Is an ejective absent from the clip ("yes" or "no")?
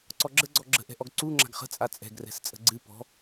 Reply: no